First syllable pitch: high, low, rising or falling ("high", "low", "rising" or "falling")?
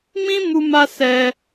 high